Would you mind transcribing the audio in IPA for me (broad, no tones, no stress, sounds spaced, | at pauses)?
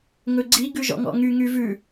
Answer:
ŋ ɵ ɡ͡ǀ i ɡ ʉ ʒ ɔ̰ ŋ ɔ̰ ŋ y ŋ y v ʉ